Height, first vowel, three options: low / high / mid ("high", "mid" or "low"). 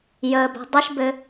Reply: mid